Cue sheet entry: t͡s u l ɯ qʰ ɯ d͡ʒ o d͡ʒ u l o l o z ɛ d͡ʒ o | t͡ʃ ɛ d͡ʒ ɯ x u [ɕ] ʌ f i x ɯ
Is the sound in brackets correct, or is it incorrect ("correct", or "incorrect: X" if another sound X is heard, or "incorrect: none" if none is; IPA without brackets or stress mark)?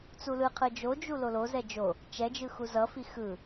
incorrect: z